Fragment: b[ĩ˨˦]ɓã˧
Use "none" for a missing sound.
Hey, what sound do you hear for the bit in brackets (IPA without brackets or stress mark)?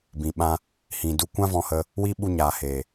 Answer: ĩ˨